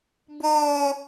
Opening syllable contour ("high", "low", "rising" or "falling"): high